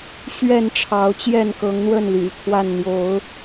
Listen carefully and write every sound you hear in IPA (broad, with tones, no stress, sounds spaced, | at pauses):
ɕ ɥ ɛ˥˨ n ʈ͡ʂʰ ɑ˨˦ ʊ̯ t͡ɕ j ɛ˥˨ n k ɤ˨˦ ŋ n̪ w ə˥˨ n l y̰˨˩ kʰ w a˥˨ n n̪ j o˨˦ ʊ̯